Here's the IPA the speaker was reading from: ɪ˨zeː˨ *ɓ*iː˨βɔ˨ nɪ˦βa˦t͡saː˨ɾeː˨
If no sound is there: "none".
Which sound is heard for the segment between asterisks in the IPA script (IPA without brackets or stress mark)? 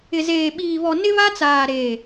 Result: ɓ